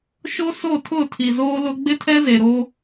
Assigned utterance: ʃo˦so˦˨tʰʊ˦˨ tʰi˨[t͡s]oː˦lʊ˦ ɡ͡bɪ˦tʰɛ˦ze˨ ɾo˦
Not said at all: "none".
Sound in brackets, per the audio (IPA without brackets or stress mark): z